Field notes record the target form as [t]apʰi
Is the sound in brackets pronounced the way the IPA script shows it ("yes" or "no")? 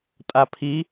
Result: no